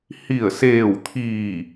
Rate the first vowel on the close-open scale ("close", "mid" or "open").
close